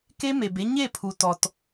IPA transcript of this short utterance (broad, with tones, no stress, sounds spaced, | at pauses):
k e˦ m e˨ b e˦ ɲ e˦˨ pʰ u˨ t ɔ˨ t